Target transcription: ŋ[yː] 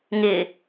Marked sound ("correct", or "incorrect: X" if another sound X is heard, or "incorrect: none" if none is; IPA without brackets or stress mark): incorrect: ɪː